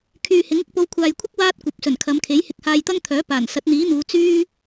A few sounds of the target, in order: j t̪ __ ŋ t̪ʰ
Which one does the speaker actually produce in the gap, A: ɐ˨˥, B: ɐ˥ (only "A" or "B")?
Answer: B